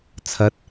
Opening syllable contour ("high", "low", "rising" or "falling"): rising